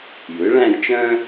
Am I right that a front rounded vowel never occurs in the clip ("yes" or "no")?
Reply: no